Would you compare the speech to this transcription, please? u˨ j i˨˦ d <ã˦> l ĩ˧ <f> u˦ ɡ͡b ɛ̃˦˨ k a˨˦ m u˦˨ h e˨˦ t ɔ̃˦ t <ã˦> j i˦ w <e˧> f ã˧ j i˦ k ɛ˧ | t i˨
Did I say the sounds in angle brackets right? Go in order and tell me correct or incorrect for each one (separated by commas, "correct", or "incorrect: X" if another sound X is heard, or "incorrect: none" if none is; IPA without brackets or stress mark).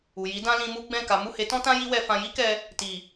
correct, incorrect: m, correct, incorrect: ɛ˧